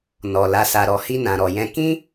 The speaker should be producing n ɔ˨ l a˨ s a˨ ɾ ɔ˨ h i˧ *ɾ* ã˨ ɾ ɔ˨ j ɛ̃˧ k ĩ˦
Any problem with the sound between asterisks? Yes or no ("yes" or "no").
yes